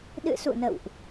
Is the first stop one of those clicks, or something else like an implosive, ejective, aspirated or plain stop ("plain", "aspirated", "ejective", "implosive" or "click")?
implosive